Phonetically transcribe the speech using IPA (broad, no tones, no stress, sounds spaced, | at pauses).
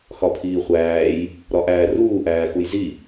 x ɒ pʰ iː χʷ æː j | ɾ ɒ ʔ æː r uː ʔ æː x u j z i